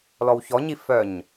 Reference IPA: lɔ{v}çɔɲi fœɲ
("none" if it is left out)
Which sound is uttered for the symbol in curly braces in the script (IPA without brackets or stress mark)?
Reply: w